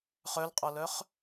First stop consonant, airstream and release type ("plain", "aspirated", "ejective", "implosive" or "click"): ejective